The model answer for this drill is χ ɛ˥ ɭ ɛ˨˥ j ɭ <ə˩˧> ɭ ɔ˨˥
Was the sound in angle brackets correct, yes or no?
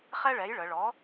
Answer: yes